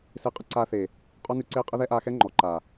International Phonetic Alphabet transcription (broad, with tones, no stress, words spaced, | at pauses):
se˧qʼə˦ǀaː˧θeː˨ | qʼɔ˦nʉ˧ǀeː˦ qʼə˦ðɛ˦ʔaː˧xɛ˦ ŋ͡ǃɔ˨ǃaː˨